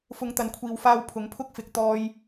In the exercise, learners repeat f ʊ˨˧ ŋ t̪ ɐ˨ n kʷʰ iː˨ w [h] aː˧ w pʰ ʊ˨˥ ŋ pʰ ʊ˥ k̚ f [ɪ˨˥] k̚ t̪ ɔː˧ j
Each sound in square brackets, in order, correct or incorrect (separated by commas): incorrect, correct